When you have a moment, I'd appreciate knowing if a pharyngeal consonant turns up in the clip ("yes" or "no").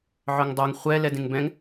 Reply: yes